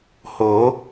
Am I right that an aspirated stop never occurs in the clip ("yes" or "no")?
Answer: yes